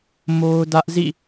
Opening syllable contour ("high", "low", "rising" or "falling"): high